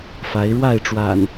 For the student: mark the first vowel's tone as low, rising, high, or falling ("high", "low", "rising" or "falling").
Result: rising